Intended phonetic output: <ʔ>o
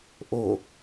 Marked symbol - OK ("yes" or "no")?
yes